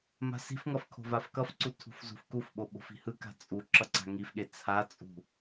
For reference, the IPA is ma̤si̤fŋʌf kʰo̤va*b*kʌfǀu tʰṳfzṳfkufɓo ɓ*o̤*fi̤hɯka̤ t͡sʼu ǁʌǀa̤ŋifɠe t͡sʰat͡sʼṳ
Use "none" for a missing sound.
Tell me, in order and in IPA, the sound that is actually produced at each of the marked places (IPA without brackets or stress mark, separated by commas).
f, o̤